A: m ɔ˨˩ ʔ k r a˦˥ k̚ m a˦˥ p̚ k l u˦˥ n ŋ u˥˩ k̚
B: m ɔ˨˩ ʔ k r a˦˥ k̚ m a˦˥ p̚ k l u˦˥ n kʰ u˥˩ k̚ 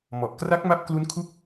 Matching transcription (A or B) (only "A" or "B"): B